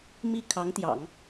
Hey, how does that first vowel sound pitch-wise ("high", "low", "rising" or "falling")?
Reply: falling